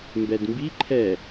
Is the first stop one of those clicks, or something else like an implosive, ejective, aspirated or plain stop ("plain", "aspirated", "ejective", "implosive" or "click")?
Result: plain